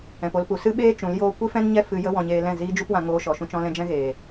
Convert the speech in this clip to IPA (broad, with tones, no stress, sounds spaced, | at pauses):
ɛ̃˨ p o˧ l p u˨ s ɨ˦ ɓ eː˦ t͡ʃ ũ˨˦ l j oː˦ kʷ i˦ f ɛ̃˦ n ɲ ɛ˦ f ɨ˦ j ə˦ w ɔ̃˧ ɲ eː˧ l ɛ̃˦˨ z iː˦ d͡ʒ u˦ p w ã˧ ŋ oː˧ ʃ ɔ˨ ʃ ũ˧ t͡ʃ ɔ̃˦ l ɛ̃˦ d͡ʒ ɛ̃˦ ɣ eː˨